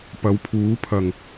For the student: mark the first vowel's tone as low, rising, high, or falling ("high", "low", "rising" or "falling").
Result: rising